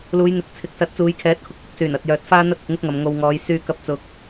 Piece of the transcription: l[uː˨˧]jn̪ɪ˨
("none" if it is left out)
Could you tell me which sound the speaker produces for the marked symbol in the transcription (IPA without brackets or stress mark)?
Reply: uː˨˧